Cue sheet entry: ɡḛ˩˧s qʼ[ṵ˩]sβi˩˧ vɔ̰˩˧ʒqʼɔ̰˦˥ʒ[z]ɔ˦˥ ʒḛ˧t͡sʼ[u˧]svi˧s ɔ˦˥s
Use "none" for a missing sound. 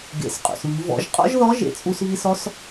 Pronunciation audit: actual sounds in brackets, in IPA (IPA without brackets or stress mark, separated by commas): ṵ˩, ð, u˧